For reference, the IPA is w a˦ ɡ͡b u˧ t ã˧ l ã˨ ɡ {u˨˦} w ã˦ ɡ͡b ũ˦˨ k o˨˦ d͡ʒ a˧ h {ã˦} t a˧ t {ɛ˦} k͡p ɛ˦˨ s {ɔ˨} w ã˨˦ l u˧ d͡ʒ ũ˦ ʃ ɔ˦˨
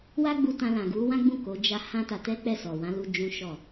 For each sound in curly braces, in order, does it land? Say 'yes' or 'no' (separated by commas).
yes, yes, yes, yes